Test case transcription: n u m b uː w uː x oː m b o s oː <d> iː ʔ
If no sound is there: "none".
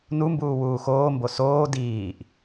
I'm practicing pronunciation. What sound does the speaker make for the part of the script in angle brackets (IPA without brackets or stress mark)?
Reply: d